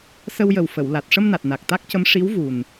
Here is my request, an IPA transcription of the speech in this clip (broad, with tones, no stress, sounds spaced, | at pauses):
s ə˧ w j ə˨˩ w f ə˨˩˨ w l a˨˩ t̚ ʂ ə˧ m n a˨˩ t̚ n a˨˩ k̚ t̪ a˦˥ k̚ c ə˧˥ m ʂ i˧˥ w v u˨˩ n